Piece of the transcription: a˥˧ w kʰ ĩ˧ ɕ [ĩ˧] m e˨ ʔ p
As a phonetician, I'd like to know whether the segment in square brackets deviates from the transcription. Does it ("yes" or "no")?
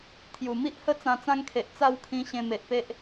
yes